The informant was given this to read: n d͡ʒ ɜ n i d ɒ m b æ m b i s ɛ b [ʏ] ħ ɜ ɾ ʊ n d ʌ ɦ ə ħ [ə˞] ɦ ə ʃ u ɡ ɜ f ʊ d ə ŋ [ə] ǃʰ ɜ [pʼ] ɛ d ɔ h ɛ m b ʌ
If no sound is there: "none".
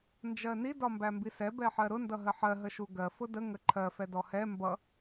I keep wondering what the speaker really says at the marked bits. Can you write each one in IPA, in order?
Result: ɛ, ɜ, ə, f

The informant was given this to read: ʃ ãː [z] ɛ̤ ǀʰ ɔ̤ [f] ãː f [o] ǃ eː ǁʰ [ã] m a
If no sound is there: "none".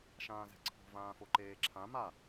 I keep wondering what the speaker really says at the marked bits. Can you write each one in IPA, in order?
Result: z, v, o, ã

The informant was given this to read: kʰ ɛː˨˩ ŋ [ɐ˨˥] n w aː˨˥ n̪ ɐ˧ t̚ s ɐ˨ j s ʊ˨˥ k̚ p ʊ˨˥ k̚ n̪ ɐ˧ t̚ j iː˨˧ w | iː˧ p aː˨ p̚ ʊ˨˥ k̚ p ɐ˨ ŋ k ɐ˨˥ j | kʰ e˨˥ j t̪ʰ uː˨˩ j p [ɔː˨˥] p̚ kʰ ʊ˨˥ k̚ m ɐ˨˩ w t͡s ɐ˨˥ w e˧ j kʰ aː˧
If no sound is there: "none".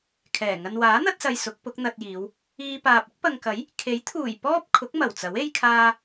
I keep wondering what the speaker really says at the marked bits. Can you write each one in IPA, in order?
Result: ɐ˧, ɔː˥

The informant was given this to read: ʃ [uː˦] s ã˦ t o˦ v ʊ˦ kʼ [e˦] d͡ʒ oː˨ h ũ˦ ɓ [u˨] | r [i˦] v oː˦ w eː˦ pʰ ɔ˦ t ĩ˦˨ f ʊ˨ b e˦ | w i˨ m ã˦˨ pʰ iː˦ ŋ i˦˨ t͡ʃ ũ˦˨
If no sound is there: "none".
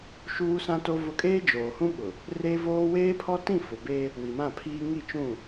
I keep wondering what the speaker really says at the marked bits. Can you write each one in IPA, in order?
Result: uː˦, eː˦, ʊ˨, e˦

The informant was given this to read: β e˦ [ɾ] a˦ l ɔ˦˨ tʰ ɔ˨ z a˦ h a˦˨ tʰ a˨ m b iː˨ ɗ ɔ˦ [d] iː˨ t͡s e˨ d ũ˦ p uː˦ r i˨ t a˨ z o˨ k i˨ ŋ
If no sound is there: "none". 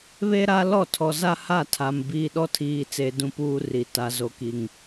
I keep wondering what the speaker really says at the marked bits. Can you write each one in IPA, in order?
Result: ɾ, tʰ

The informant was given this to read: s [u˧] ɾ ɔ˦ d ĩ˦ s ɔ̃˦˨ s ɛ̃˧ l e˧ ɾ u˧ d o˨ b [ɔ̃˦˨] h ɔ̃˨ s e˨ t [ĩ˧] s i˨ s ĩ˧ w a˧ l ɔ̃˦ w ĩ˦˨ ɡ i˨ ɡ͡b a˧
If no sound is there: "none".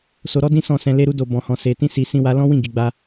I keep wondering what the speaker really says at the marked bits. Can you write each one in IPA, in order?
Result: o˧, ɔ̃˨, ĩ˧

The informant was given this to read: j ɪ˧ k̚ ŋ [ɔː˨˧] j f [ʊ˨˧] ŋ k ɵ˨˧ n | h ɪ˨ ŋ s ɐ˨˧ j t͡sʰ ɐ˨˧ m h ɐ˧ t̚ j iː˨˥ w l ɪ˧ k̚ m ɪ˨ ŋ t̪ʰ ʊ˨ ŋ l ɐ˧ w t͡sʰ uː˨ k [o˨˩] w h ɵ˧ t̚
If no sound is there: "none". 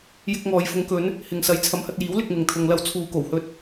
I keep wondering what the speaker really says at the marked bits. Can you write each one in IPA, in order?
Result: ɔː˨, ʊ˨˧, o˨˩

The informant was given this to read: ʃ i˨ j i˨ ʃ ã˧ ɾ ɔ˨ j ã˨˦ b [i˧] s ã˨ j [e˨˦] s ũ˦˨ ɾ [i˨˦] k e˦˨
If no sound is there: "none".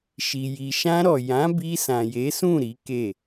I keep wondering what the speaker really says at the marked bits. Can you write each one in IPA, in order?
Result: i˧, e˨˦, i˨˦

